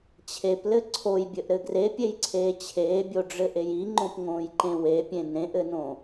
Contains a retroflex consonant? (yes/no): yes